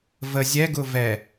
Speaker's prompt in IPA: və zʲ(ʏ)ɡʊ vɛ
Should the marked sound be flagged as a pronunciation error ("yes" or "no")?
yes